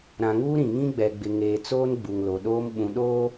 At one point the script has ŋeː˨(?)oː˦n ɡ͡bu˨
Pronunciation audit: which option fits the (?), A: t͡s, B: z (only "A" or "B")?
A